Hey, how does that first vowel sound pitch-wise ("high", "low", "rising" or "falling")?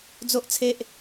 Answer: high